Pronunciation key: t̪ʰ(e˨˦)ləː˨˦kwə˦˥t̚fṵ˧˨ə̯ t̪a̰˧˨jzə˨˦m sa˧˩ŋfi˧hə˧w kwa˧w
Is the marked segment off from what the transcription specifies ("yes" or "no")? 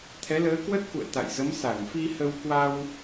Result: yes